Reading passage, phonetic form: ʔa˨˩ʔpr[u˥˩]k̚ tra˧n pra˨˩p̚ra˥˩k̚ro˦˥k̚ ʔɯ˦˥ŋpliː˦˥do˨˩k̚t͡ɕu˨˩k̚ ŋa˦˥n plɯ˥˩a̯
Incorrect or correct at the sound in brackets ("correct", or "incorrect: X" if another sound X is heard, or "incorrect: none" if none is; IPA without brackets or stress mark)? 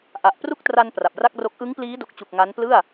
correct